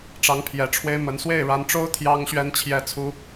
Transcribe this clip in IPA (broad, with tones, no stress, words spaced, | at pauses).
ʈ͡ʂɑ˧˥ŋpʰjɛ˨˩ʈ͡ʂʰwe˥ɪ̯mə˧˥n swe˥˩ɪ̯ɻa˧˥nʈ͡ʂo˥ʊ̯ t̪ʰjɑ˥ŋɕɥɛ˥nt͡ɕʰjɛ˥t͡sʰu˥